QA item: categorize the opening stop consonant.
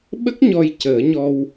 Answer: implosive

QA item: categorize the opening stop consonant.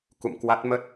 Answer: plain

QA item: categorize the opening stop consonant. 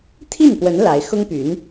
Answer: aspirated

